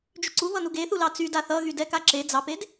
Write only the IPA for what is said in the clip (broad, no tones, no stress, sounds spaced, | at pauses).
d͡ʒ y ǀ u β ʌ n u ɡ e θ u l ɑ t͡s y d a θ ʌ ɣ y d ɛ k a ǁ e d͡z ɑ p e d